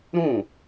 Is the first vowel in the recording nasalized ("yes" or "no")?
yes